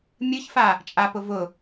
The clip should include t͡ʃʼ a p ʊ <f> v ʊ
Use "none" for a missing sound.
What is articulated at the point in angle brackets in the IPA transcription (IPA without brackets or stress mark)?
none